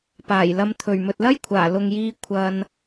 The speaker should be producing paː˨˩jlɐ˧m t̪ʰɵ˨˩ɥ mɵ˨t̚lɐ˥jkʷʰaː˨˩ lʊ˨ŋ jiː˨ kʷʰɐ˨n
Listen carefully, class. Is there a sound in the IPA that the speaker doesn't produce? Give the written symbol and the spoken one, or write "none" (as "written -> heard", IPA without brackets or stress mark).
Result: none